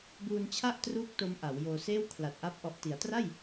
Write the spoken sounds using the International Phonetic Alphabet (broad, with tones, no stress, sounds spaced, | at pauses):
b uː˧ n t͡ɕʰ a˥˩ ʔ t r uː˦˥ k̚ t o˦˥ m ʔ a˩˦ w j oː˧ s eː˥˩ w kʰ l a˨˩ t̚ ʔ a˦˥ p̚ ʔ ɔ˨˩ ʔ t i˩˦ a̯ t r a˥˩ j